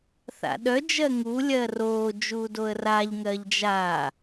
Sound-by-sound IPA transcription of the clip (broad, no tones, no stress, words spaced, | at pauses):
θa̰ɗœ d͡ʒɜŋu lʲɜroː d͡ʒuːdoə̯raʎ ŋɜʎd͡ʒaː